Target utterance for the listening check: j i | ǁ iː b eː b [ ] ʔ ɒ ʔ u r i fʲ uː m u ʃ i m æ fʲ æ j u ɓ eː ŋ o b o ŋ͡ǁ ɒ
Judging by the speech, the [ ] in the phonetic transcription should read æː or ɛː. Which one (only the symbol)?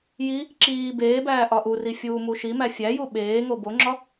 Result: æː